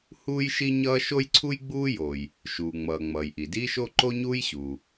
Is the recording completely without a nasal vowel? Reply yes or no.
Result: yes